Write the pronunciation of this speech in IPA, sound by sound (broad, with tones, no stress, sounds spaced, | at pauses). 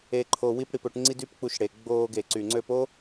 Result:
e˧ ǃʰ o˧ w i˦ p ɽ i˧ p ø˧ ʈ ŋ͡ǀ i˦ d y˦ p k͡p u˧ ʃ ɽ e˨ ɡ͡b oː˧ ɡ e˨ ǀ y˨ ŋ͡ǀ ø˧ p o˦